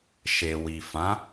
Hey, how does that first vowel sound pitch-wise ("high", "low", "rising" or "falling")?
low